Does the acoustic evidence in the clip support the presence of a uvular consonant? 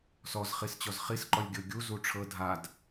yes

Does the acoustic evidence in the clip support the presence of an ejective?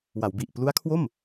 no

